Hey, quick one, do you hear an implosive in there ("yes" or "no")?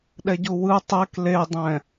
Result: yes